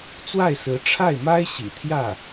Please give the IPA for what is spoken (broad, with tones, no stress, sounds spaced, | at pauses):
t͡s w a˥˩ ɪ̯ s ɹ̩˧˥ ʈ͡ʂʰ a˥˩ ɪ̯ m a˥ ɪ̯ ɕ ḭ˨˩ t̪ʰ j ä˥˩